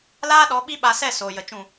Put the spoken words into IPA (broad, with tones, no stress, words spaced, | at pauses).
laː˦ɗɔ˨˦ ɓi˦ɓa˧ sɛ˦˨ soː˨jə˨ t͡ʃũ˨